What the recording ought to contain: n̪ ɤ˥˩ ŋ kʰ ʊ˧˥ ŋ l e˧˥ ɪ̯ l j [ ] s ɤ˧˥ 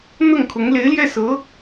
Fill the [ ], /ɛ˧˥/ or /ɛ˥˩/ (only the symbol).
ɛ˥˩